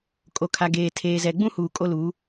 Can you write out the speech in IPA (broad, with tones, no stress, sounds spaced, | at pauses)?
kʼ o˨ kʰ a˨ ɡ eː˨ tʰ eː˨ z ɛ˨ ɡ͡b ũ˦ h uː˨ kʼ o˦ l u˨˦